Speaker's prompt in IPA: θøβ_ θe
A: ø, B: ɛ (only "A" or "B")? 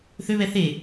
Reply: B